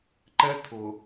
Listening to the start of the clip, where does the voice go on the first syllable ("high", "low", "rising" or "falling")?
high